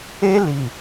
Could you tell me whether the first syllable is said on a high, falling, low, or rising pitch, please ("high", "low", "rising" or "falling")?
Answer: high